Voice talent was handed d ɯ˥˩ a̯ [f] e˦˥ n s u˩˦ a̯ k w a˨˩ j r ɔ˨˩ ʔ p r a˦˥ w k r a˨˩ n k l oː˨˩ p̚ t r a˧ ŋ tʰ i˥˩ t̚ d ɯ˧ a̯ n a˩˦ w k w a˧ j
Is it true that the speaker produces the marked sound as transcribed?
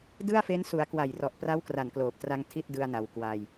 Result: yes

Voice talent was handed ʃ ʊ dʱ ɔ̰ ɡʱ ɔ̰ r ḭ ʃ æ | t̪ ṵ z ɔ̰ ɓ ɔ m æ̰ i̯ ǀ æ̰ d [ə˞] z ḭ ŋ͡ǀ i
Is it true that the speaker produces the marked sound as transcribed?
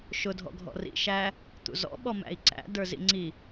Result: yes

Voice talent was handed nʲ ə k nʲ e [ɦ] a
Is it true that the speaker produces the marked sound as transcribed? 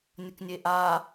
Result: no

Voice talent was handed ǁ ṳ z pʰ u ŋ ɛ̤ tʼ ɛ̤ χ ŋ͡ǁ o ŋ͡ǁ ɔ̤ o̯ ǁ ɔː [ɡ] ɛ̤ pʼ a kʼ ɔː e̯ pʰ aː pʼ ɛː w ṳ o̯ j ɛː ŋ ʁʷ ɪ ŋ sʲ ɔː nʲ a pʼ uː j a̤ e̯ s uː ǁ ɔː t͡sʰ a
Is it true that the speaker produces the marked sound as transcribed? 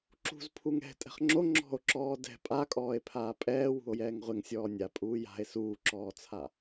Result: no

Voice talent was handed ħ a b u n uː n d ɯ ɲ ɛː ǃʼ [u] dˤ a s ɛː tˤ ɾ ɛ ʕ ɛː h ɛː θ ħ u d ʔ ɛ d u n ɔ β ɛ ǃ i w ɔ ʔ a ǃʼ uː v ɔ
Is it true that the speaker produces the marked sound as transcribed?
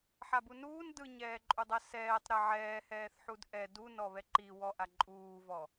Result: yes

